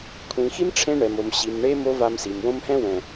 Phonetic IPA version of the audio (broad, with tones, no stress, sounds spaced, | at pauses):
kʷʰ ĩ˨ x i˦ m ʈ͡ʂʰ ẽ˦ ɳ ɛ˨ m o˨ m ɕ i˨ m ɳ e˦ m o˦ v a˧ m s i˨ m w õ˦ m h ɛ̃˦ w ɛ̃˨